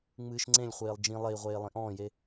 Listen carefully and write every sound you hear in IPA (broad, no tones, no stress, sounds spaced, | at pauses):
ŋ͡m ɨː ʃ ŋ͡ǀ ẽ lʲ χʷ eː lˠ d͡ʒ ĩ lˠ e i̯ ʁʷ eː lˠ ĩ ʔ ɔ̃ː j e